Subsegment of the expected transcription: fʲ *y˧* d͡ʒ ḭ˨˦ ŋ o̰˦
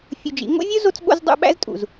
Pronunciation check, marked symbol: incorrect: u˧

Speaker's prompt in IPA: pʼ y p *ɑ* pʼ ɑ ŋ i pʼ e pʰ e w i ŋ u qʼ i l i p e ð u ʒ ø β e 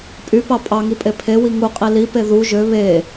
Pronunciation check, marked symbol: correct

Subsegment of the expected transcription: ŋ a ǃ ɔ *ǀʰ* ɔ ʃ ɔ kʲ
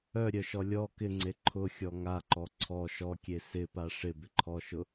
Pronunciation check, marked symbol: correct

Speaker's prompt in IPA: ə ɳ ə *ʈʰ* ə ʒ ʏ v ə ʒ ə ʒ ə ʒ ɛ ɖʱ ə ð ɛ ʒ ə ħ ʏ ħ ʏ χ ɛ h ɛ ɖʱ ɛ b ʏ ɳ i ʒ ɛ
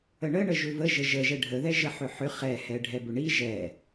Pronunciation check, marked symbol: incorrect: ɳ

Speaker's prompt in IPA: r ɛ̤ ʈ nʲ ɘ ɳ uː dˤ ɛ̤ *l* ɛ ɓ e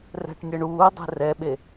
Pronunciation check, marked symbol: incorrect: r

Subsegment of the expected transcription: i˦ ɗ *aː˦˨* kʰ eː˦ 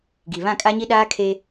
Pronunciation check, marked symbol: incorrect: aː˦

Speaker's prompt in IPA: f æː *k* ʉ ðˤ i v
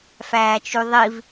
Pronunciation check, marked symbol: incorrect: t͡ʃ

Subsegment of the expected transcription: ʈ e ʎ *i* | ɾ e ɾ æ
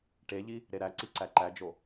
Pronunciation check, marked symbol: correct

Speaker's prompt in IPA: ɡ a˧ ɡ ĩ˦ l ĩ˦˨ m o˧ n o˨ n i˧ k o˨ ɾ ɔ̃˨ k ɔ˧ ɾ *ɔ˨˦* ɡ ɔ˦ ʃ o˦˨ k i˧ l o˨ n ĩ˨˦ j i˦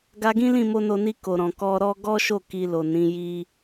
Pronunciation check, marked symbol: incorrect: ɔ˦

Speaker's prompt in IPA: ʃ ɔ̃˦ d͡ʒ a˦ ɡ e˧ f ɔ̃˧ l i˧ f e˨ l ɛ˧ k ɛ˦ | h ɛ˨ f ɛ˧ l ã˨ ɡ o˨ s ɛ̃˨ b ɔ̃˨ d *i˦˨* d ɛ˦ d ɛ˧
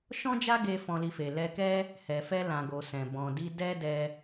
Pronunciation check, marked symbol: incorrect: i˧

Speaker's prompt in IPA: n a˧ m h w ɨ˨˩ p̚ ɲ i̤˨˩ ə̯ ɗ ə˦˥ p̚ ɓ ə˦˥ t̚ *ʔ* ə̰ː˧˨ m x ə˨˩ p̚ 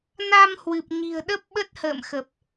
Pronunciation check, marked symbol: incorrect: h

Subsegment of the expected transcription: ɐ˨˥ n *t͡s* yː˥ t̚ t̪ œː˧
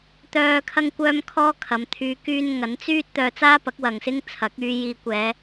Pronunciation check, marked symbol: correct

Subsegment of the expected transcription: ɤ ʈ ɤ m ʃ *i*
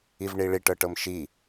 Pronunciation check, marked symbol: correct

